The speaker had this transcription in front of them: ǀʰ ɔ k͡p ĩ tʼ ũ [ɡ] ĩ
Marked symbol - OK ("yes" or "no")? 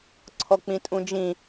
no